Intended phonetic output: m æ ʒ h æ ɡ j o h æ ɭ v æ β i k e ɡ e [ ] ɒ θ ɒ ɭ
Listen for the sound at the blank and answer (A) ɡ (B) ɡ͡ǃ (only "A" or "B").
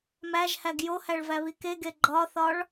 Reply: B